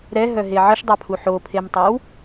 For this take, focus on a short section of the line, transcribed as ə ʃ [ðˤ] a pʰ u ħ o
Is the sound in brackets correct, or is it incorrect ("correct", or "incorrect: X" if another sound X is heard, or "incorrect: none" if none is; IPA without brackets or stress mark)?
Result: incorrect: dˤ